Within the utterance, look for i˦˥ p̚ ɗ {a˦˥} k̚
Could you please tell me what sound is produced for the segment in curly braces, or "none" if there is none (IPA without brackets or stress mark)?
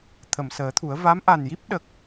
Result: ə˦˥